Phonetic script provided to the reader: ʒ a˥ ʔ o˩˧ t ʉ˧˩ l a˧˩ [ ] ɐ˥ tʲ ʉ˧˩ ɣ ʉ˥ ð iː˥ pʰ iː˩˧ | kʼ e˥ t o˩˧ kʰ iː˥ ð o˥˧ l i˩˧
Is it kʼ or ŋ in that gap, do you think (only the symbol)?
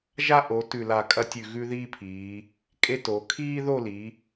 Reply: kʼ